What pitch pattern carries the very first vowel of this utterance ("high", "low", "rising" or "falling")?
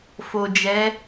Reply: low